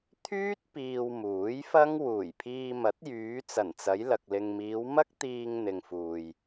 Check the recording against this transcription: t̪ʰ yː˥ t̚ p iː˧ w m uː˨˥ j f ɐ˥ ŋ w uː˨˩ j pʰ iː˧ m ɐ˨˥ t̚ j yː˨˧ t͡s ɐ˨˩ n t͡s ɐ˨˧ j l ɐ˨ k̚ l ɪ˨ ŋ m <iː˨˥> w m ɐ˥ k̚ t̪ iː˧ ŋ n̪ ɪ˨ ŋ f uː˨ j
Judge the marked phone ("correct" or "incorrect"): incorrect